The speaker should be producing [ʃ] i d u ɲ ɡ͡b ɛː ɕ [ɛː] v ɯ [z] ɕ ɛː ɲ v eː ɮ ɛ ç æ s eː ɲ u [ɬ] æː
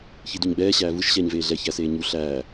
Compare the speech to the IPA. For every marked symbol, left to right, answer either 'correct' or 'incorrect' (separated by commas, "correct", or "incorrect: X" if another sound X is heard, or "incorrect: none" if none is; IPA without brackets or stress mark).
incorrect: ç, incorrect: æː, incorrect: ʃ, correct